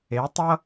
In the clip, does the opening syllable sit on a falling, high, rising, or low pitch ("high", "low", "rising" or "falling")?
rising